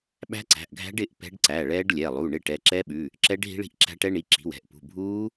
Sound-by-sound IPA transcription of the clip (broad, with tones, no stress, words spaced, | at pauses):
ɓæ̤˦˥ǀæ̤˩˧˩ʔɡʱæ̤˦˥ɖ ɪ˩˧˩ʔ pɛ̤˦˥ɖǀæ˩˧˩ɭɛː˦˥ɖlʲɛ˩˧˩ lˠu˩˧˩ ɳɪ˦˥ʈɛ˩˧˩ ǁɛ˦˥ɓʉ˩˧˩ | ǁɛ˦˥ɖ ɦi̤˦˥ɭi̤˦˥ʔǁæ̤˦˥ʈɛ˦˥ ɳi˩˧˩ǁi̤˩˧˩wɛ̤˩˧˩ʔpṳ˩˧˩ bʱuː˦˥